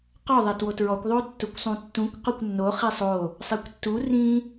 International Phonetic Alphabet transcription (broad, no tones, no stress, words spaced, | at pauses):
qɔ ðˤɛtwotɹɔkʷ ðˤotːʊkʷsˤũtːũkʷ qʊkʷnːo χisˤo | sˤikʷtːu rĩ